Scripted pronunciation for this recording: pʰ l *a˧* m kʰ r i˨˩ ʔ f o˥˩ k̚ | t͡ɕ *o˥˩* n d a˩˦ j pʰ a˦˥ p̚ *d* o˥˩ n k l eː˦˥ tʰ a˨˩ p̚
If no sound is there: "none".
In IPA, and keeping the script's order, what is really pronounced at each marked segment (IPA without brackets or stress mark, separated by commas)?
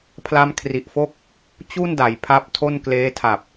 a˦˥, u˥˩, tʰ